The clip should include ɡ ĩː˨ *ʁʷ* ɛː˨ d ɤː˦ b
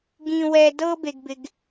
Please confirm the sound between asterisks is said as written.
no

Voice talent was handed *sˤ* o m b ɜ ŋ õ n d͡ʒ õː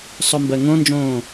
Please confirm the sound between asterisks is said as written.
yes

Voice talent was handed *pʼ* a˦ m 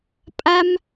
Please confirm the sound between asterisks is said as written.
yes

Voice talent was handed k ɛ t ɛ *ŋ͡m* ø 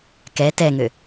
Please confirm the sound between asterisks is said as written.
no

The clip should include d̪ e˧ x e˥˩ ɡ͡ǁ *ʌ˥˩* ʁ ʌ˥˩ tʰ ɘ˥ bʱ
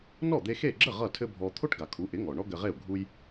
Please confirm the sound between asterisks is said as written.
no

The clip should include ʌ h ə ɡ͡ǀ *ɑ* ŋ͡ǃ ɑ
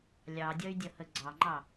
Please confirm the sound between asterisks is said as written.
yes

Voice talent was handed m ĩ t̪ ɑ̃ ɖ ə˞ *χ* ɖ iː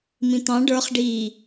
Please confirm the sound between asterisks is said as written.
yes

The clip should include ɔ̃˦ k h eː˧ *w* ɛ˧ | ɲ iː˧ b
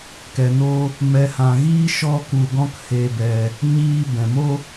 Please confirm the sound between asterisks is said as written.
no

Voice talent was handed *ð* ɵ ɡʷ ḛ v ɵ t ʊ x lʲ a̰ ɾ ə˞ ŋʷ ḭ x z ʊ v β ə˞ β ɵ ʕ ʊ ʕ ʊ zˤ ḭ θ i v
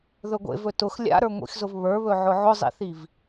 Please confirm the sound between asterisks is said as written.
yes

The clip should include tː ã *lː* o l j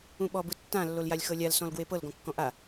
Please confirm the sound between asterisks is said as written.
yes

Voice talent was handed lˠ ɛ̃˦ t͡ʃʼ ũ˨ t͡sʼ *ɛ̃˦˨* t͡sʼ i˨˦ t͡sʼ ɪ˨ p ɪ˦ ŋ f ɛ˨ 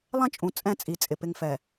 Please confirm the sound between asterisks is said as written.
yes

